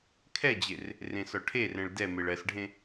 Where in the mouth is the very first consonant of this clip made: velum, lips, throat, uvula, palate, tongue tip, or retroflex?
velum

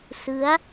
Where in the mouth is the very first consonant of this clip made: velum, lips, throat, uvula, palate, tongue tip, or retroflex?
tongue tip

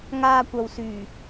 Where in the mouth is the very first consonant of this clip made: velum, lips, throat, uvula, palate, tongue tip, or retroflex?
velum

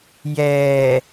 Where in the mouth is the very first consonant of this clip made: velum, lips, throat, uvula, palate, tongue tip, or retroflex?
palate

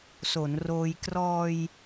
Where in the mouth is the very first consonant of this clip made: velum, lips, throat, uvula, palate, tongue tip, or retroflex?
tongue tip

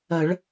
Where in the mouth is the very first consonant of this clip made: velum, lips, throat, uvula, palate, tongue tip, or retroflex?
retroflex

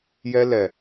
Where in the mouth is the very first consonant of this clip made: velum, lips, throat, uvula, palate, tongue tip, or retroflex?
palate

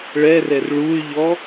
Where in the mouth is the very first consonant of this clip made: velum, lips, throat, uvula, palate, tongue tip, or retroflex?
retroflex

